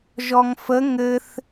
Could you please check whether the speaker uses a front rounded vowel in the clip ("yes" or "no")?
no